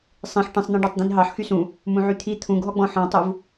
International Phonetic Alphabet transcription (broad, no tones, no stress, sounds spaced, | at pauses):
sˤ ĩ ħ ʈ ĩ sˤ n̪ ɑ̃ ɖ ɑ tˤ d̪ ĩ n ɦ ɑ ħ x y s ũ | m ũ ʕ y t̪ʰ i t̪ʰ ũ ɡ ɦ ɔ ɡ͡b ɔ̃ ħ ɔ̃ tˤ u v